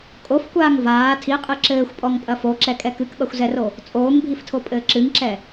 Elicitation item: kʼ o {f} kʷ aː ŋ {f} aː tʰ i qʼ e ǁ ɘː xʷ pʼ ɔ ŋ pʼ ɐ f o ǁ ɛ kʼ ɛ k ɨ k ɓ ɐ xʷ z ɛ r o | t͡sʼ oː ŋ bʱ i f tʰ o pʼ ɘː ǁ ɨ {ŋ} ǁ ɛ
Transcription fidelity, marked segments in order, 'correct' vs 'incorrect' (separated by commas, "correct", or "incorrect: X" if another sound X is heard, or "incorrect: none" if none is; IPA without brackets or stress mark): correct, incorrect: v, correct